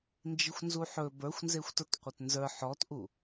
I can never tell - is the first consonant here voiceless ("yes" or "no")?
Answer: no